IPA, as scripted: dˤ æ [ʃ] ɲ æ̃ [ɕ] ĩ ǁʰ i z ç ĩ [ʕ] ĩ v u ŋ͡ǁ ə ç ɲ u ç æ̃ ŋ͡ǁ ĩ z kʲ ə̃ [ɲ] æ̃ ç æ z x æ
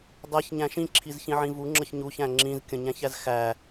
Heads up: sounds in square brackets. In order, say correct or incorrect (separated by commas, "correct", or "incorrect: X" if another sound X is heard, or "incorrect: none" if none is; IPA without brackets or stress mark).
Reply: incorrect: ç, incorrect: ʃ, correct, correct